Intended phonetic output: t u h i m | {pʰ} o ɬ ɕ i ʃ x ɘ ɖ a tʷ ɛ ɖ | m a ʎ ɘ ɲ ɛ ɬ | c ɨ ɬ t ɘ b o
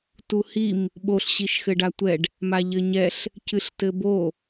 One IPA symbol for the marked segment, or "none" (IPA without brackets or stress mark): ɓ